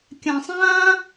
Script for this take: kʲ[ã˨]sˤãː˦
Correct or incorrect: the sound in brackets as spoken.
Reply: correct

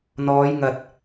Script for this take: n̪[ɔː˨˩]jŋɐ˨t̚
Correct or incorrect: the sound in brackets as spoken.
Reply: incorrect: ɔː˨˧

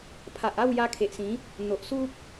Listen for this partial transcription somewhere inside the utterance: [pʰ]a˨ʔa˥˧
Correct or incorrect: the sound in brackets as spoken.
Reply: correct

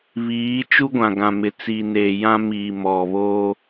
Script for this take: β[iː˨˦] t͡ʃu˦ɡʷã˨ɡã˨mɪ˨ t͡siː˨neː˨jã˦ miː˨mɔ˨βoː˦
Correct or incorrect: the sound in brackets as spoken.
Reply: correct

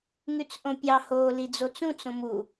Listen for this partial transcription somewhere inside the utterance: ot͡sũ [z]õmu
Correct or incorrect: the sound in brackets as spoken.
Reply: incorrect: t͡s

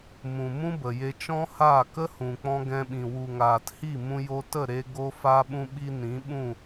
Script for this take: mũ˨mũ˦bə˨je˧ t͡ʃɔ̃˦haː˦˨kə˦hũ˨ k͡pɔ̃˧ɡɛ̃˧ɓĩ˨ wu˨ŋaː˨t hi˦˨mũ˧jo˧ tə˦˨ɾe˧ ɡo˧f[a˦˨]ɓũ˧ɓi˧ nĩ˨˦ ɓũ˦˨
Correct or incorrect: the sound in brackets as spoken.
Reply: incorrect: a˧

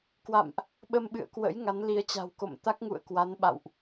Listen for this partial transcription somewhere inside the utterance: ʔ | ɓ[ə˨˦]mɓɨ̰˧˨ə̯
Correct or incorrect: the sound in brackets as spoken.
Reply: incorrect: ə˧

